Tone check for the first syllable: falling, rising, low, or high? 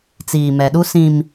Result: low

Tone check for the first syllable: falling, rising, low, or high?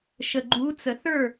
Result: low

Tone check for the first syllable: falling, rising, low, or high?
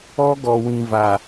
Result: high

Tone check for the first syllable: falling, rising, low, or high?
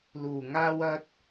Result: low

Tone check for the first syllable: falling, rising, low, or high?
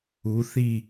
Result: rising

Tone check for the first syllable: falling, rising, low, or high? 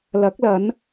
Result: rising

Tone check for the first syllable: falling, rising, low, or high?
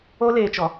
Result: high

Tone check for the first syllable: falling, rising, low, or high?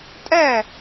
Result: falling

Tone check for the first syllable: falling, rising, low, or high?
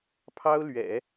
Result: high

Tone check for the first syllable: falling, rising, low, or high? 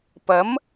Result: rising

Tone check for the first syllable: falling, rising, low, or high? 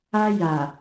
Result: high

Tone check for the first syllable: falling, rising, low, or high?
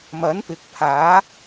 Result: rising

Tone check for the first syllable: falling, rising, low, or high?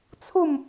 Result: falling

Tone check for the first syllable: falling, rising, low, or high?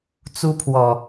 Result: high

